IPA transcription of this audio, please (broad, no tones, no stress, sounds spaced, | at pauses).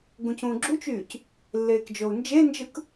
ɡ ũ c ũː ɡ͡ǁ u t͡ʃ yː c | lː eː k d͡ʒ o u̯ n d͡ʒ e n d͡ʒ ɯ k